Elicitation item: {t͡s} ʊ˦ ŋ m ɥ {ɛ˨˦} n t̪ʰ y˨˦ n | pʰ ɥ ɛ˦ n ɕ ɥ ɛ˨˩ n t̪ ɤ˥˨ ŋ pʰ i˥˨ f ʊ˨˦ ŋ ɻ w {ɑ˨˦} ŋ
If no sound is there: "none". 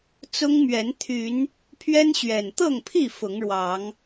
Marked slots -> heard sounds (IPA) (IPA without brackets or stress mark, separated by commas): t͡s, ɛ˨˦, ɑ˨˦